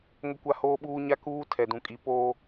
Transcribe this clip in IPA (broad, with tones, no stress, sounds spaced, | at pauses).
ŋ ʊ˦ kʷ a˦ h oː˦ ɓ uː˦ ɲ a˦ k uː˦ tʰ ɛ˨ d ũ˨ kʼ i˨ p oː˦